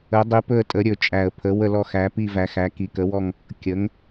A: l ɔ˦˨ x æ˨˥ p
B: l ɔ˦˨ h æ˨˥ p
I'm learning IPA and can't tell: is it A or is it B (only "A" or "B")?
A